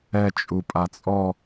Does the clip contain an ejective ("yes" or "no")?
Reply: yes